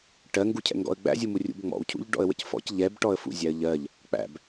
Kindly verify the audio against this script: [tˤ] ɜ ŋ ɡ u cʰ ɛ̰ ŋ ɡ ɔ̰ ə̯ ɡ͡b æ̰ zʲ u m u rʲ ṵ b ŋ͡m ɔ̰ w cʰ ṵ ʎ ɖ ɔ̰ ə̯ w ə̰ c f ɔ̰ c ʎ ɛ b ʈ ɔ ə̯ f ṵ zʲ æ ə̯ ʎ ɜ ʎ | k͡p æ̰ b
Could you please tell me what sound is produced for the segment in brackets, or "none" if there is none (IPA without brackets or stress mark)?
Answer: ʈ